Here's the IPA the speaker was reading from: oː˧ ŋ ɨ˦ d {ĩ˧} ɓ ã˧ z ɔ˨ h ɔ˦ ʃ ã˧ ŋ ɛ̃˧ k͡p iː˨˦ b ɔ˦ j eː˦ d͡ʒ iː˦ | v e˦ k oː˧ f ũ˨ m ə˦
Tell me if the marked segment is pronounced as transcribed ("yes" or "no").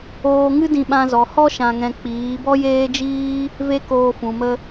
yes